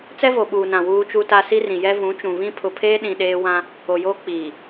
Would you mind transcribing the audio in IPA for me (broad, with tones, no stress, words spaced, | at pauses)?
t͡sɛ˦vo˨ɓuː˨nã˨ wuː˦t͡ʃu˦ta˦ si˦rĩ˨jɛ˦ vũ˨˦t͡ʃũ˨ βĩ˦ pʰʊ˨pʰeː˦ɗĩ˨ ɗeː˦ wã˦ | o˨joː˦ k͡piː˨